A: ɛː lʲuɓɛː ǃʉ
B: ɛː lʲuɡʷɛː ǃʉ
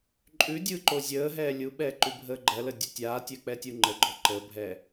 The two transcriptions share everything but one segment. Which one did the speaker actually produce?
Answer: A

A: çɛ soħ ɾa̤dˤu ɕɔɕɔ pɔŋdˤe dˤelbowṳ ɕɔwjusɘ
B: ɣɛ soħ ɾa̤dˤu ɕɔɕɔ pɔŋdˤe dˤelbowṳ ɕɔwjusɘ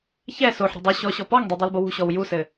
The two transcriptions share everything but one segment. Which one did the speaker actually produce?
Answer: A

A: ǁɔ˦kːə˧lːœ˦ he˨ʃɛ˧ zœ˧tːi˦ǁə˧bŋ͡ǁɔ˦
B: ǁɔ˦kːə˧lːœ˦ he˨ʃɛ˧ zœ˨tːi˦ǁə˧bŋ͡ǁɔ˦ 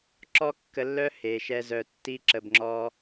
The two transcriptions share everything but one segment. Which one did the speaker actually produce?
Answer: A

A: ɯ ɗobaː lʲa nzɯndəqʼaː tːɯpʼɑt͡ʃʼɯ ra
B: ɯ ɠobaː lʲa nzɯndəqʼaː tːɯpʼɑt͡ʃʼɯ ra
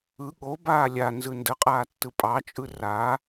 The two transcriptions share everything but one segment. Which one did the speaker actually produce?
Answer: B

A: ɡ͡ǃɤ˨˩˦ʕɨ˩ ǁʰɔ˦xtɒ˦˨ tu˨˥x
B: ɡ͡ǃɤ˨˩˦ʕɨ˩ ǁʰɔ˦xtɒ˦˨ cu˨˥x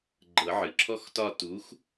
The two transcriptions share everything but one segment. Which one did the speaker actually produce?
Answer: A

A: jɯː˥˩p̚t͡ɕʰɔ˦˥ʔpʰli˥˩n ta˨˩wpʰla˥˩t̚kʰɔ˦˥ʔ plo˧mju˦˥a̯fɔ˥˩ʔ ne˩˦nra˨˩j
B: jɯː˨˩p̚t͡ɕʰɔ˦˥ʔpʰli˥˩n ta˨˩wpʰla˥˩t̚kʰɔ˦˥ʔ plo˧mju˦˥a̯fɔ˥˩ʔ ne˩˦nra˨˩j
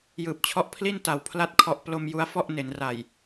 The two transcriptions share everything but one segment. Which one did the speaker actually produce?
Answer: B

